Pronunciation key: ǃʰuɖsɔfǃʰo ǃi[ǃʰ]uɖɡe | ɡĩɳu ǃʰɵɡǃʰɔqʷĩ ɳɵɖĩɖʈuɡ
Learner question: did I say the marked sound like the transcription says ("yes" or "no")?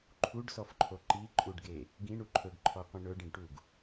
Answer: no